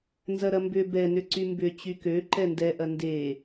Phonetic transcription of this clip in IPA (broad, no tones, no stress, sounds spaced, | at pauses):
n z ɐ ɾ ɐ m b ʏ b ɛ n ʏ ǀ y m b ʏ t͡ɕ y k ø ǃ ɛ n d ɛ ʔ ɐ n d e